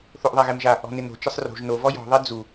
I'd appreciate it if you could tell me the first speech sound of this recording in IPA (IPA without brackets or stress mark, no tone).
θ